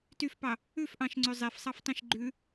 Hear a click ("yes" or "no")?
yes